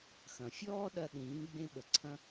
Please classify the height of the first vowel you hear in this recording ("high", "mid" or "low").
low